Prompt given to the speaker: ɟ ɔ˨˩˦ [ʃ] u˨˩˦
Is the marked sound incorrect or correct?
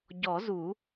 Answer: incorrect: z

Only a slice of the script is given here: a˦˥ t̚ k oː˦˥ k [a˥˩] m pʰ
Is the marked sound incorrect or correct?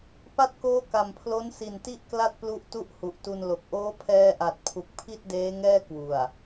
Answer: incorrect: a˨˩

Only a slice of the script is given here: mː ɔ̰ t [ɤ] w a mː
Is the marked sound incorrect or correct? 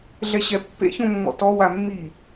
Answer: incorrect: ɔ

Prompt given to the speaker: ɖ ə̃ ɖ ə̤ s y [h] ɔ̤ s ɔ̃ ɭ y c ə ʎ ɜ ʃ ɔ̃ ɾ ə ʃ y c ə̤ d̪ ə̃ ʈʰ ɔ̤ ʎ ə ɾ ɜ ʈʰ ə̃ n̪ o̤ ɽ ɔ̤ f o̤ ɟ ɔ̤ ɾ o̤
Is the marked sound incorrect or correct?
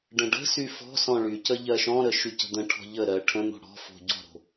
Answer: incorrect: f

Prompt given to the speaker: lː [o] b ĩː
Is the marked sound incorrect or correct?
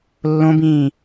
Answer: incorrect: õ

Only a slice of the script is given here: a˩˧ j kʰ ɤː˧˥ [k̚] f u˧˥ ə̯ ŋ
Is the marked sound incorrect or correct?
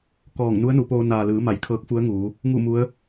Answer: correct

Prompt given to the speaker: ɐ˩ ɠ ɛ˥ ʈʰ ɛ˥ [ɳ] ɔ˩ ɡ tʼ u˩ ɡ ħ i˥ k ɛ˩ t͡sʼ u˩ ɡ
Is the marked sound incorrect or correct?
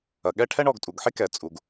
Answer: correct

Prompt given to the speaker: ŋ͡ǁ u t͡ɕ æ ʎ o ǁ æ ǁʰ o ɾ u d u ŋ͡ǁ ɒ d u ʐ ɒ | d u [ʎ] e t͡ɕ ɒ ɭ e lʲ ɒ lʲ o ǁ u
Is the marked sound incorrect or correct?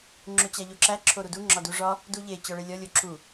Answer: correct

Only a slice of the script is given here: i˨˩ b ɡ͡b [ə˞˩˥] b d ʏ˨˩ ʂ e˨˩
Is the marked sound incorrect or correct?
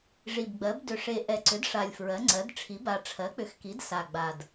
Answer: incorrect: ɜ˩˥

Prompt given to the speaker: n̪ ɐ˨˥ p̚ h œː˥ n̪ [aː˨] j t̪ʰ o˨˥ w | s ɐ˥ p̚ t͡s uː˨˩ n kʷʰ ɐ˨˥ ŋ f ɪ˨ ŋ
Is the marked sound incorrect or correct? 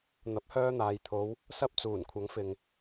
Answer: correct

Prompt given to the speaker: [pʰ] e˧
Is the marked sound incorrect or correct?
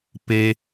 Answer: incorrect: p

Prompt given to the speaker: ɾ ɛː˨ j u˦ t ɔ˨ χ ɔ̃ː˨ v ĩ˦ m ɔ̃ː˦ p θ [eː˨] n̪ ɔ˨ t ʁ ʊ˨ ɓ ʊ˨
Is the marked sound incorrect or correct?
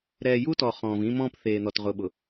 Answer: correct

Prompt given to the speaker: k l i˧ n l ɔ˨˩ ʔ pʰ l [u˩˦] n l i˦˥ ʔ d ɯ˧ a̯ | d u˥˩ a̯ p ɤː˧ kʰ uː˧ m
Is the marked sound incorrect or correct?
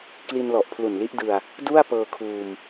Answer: incorrect: u˨˩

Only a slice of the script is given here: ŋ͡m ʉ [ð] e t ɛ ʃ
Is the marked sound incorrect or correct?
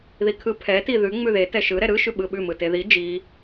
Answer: correct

